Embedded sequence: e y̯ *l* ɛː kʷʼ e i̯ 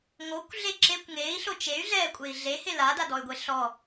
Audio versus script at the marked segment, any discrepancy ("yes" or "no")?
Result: yes